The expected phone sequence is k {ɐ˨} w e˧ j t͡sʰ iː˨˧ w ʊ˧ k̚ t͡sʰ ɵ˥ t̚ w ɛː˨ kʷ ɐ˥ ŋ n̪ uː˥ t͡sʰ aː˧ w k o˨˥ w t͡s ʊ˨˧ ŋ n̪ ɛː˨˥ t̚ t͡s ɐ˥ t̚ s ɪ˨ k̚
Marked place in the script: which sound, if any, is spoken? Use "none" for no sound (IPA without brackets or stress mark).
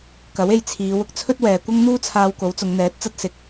ɐ˨˥